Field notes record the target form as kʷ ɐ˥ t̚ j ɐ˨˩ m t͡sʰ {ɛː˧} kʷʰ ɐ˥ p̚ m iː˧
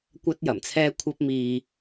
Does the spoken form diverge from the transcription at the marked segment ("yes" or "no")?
yes